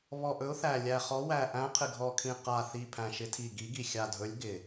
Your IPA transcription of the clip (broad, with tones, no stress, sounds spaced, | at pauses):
β ɔ˨˩ ʔ ɵ˨˦ ʊ̯ θ æ˨˩ lʲ æ˨˩ χ ɔ˨˦ w æ˨˩ ʔ æ̃˨˦ qʰ ɪ˨˩ ɡʱ ɔ˨˩ kʰ ĩ˨˩ q a˨˩ θ i˨˩ pʰ æ̃˨˩ ʃ ɪ˨˦ tʰ i˨˩ ɡ i˨˦ ɡ i˨˩ xʲ a˨˩ dʱ ɵ˨˦ lʲ ɡ ɪ˨˩